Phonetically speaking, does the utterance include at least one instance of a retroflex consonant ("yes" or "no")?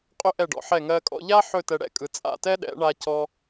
yes